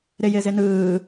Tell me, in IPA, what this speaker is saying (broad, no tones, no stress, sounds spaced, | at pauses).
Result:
ɾ ɪ j ɪ z ɪ n ɯː